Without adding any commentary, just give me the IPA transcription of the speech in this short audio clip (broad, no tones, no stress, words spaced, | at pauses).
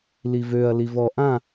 livøɐ̯li vɔ ʔã